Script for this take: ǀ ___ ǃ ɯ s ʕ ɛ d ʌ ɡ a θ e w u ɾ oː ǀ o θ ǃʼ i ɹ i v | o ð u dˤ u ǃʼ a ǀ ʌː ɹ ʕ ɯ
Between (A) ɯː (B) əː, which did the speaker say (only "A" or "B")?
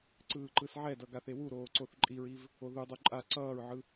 A